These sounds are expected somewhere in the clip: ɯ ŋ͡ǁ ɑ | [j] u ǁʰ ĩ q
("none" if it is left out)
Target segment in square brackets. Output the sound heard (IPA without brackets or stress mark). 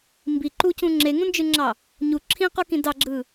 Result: ɲ